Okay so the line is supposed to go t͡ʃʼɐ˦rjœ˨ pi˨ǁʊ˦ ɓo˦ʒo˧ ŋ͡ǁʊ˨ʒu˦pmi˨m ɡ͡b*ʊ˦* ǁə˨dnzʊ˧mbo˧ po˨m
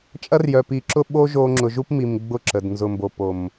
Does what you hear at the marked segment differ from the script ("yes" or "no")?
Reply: yes